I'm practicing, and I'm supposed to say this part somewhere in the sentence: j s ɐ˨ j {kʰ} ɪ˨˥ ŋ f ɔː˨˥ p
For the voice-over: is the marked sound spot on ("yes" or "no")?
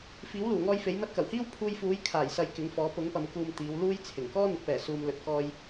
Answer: no